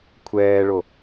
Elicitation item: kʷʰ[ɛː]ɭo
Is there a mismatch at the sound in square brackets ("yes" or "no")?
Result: no